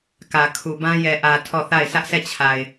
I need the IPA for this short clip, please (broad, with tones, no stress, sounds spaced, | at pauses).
k ä˨ kʰ u˨ b ã˦ j ɛ˨ ʔ ä˨ tʰ ɔ˦˨ θ a˦˨ ɪ̯ s ä˦ ʔ sʰ ɛ˦˨ t͡ɕʰ a˨ ɪ̯